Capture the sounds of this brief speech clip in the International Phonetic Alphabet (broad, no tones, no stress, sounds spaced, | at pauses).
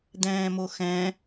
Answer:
d̪ ɛ̃ː m o x ɛ̃